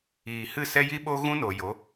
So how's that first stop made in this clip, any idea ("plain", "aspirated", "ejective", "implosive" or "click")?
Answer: implosive